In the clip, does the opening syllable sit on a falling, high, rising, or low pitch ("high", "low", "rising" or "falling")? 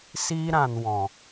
high